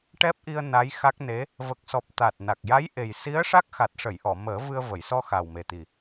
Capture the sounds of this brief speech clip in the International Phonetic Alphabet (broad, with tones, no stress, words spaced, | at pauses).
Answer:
ʈɛ˦˥p̚ʔi˧ə̯ na˧˥jxa˦˥k̚ ne˧˥ | və˨˩k̚sɔ˨˩p̚ t̪a˨˩t̚na˨˩k̚ja˧˥jʔe˨˩j si˧˥ə̯ ʂa˦˥k̚ xa˨˩t̚ʂə˨˩˨j ʔɔ˨˩˨ məː˨˩˦vɨ˧ə̯və˨˩˨jsɔ˧ xa˨˩wme˨˩t̪i˨˩